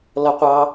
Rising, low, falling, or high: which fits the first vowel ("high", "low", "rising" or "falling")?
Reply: low